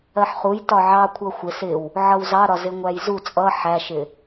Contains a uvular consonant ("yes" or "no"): yes